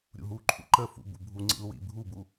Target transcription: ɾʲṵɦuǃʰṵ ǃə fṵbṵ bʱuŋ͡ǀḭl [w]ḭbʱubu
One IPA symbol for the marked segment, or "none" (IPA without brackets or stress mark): w